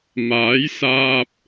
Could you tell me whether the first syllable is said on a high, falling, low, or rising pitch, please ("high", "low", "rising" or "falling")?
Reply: rising